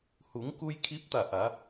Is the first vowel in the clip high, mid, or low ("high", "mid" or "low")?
high